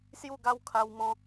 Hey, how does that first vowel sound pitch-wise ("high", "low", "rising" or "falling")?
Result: falling